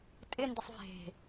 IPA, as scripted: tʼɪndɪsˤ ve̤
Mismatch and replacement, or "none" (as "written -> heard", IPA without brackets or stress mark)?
none